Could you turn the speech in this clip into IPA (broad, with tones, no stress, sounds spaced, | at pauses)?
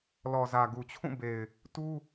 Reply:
l ɔ˨ z ä˨ ɡ u˨ t͡ɕʰ ũ˦˨ b e˨ ɪ̯ | t u˦